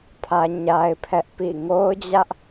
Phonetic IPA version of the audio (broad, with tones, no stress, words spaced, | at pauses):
pʰä˦ɲa˦ɪ̯pʰɛ˦ʔ pḭ˦˨ ŋo˦ʊ̯d͡ʑä˦ʔ